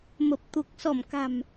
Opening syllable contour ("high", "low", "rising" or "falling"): low